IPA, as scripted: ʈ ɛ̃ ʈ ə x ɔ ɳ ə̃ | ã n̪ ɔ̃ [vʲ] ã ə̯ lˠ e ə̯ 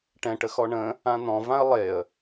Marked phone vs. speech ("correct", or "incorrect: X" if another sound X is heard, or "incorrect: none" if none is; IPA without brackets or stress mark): incorrect: v